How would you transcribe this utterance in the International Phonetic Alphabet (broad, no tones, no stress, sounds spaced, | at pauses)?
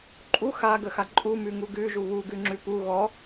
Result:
ǃʼ u x a ɡ ə x a ǃʼ u m ʉ ŋ u ɡ ʉ ʒ u β u ɡ ʉ ŋ͡ǁ ʉ p u ɣ ɔ